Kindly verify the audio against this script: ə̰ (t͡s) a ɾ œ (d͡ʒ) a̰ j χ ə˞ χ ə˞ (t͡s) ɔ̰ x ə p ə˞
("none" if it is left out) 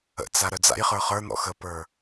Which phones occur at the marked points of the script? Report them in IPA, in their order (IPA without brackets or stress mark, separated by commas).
t͡s, d͡z, n̪